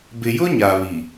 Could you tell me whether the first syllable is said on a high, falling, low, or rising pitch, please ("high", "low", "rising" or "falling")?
low